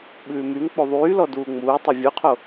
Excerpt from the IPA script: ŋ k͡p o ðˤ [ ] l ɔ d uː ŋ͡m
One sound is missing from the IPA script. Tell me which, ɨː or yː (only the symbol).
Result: yː